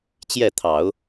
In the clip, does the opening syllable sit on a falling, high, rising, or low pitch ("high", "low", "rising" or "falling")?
falling